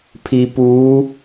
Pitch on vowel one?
low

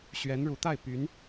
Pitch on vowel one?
rising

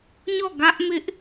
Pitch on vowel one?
falling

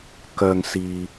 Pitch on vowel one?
low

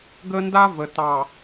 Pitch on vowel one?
high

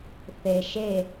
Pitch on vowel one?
low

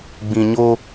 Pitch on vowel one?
low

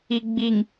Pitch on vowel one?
low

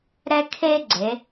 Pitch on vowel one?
high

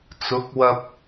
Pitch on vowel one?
rising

